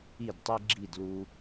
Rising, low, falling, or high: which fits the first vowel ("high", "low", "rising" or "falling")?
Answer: falling